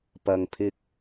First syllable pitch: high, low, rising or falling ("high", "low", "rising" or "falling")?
low